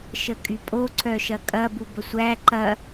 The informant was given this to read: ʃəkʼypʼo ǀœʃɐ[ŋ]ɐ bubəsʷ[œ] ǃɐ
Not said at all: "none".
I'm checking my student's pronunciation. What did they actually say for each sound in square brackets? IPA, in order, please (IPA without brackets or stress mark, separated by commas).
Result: kʼ, æ